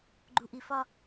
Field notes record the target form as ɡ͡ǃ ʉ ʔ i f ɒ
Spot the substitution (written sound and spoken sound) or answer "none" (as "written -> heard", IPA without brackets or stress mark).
ʉ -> u